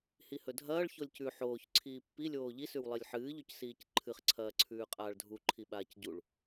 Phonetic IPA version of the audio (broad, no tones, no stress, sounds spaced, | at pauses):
h i h ɵ dʱ ɐː ɭ ç o lʲ c ʉ ħ oː ç ǀʰ iː pː i lʲ oː ʎ i s ʉ w lˠ i lʲ ħ ɨː ʎ ɵ c s iː c ǃʰ ɨ χ ǀʰ ɐː ǀʰ ʉː qʼ aː ɭ dʱ u ǃʰ i ɓ aː c ɟ u ɭ